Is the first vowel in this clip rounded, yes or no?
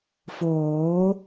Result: yes